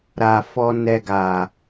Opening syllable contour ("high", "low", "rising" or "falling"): low